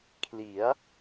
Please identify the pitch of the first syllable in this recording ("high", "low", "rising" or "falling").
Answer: rising